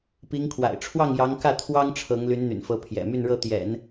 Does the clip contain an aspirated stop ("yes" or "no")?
yes